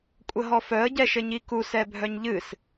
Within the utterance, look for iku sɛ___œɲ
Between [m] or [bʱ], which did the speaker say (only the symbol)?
bʱ